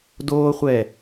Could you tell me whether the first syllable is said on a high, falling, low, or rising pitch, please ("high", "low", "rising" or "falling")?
high